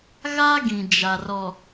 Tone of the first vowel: high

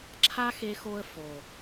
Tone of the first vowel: high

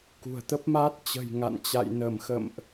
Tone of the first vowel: low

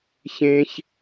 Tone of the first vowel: low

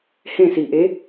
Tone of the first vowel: falling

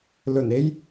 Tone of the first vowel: low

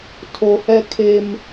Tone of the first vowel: low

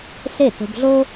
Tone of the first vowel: falling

